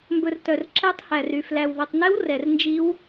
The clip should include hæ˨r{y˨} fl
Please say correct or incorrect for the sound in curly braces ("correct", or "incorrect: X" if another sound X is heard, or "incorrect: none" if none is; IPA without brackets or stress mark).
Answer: correct